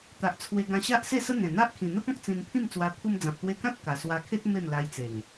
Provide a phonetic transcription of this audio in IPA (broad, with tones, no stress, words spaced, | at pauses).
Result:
t̪a˨ʔt͡sʰwe˧ ɡã˧ɕa˦ʔse˥˧sə˦ n̪ẽ˨˩n̪a˦ʔ kʰĩ˨˩n̪ə˦pɔ̃˦k̚ t͡sĩ˧npʰĩ˥˧mt͡swa˧ pʰu˧md͡zã˨p̚t̪we˧kã˦t̚ ka˨˩swa˧kʰe˦t̚ me˥˧mla˧jt͡se˨˩ŋ